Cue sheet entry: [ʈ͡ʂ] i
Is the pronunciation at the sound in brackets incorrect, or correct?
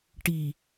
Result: incorrect